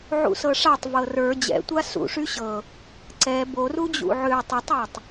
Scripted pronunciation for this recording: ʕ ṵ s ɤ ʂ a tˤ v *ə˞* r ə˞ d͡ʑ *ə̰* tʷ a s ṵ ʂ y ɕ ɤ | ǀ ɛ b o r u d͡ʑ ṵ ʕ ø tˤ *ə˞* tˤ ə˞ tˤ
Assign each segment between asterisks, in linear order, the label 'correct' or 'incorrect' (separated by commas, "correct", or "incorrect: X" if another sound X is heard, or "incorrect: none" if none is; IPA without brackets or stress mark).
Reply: incorrect: ɤ, incorrect: ɛ̰, incorrect: ə